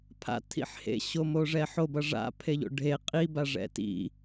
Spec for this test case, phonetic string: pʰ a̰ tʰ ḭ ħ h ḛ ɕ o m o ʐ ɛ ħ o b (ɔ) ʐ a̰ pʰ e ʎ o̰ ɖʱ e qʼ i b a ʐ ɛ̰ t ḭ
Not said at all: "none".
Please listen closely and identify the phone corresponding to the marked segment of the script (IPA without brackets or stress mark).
ʌ